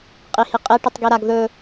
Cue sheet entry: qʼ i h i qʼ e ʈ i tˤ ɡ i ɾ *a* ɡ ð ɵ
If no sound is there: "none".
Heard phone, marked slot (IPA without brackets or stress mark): a